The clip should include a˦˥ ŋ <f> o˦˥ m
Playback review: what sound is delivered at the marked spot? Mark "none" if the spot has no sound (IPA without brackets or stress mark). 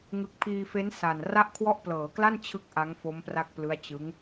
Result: f